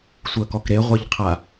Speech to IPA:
sʷ əː k ɔ k ɾ e ʁʷ e ʎ qʰ a

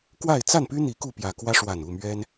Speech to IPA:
k w a˥˨ ɪ̯ t͡s a˥˨ n p y˦ n̪ i˨˦ k u˥˨ p j ä˨˩ k w ä˦ ʂ w a˨˩ n u˥˨ m ɥ ɛ˦ n

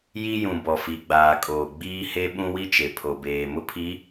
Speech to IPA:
j i˦ j ũ˨ b ɔ˨ f i˨ ɡ͡b aː˨ kʼ oː˨ ɡ͡b iː˦ h e˦ ɓ ũ˦ w i˦ t͡ʃ e˨ pʰ o˨ b eː˨ m ʊ˦ pʰ i˨˦

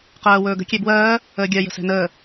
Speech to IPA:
q ɜː w ɵː ɡ ə̤ kʲ e b w ɜː | əː ɡʲ ɜ j ə̤ s ɛ̤ n əː

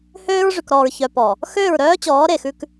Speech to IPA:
h øː˦ ɹ ʐ y˨ k ɾ ɔː˨ ɹ ç œ˨ p ɔ˨ | x øː˦˨ ɹ ɾ œː˦ t͡ɕ ɔː˨˦ ɾ e˨ x ʉ˦ k

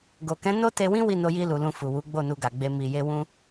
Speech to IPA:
ɡ o˨ k ɛ̃˨˦ n o˦ t e˧ w ĩ˦ w i˦˨ n o˧ j i˧ l u˨ l ũ˧ f u˨ w u˨˦ ɡ͡b o˦˨ n u˧ ɡ a˨ ɡ͡b e˧ m i˨ j e˧ w ũ˧

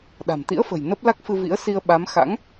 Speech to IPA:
ɗ a̤˨˩ m t̪ ḭ˧˥ ə̯ f ə̤˨˩ j n ə˦˥ p̚ l a˦˥ k̚ f ɨ˧ v ḭ˧˥ ə̯ s i˧ ə̯ ɓ a˨˦ m x a̰˧˥ ŋ

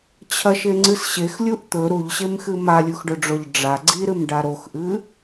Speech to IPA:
t͡ɕʰ ɐ ʃ e ŋ͡ǀ ɨ s ɕ e x lʲ u ʔ t̪ ɵ ɾ u ʎ ɕ e m x ɨ m a lʲ u x ɖ ɵ ɖ͡ʐ o ʎ ɖ͡ʐ a ɡ͡ǀ i ɾ ɨ m ɖ a ɾ o x ʔ ɨ

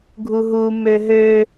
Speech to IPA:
ɡʱ u ɦ u m ø ɦ ø

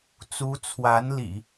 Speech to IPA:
t͡s u˧˥ t͡sʰ w a˧˥ n l ḭ˨˩˦

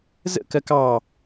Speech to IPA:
z ə̰ k ɜ k ɑ

